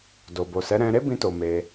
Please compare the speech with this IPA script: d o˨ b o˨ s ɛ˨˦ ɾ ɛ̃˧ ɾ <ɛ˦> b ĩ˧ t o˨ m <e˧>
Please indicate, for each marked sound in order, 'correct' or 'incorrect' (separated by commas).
incorrect, correct